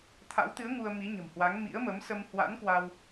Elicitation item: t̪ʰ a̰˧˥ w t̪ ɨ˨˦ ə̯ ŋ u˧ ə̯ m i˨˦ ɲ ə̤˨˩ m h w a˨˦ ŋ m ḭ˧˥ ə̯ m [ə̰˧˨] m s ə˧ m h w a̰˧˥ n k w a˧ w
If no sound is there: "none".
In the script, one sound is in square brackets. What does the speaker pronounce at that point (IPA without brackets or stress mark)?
ə˨˦